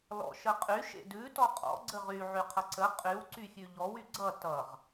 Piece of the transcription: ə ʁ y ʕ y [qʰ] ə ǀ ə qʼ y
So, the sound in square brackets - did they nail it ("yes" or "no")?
yes